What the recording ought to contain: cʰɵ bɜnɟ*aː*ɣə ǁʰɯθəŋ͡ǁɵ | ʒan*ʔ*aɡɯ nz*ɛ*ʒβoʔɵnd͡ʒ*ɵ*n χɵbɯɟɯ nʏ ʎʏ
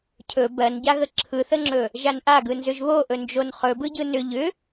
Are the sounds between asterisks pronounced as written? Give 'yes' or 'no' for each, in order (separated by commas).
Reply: no, yes, no, no